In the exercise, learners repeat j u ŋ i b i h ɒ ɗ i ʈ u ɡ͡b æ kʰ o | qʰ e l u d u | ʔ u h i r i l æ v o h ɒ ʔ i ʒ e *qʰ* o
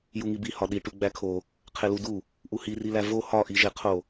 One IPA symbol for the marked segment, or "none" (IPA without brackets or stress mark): qʰ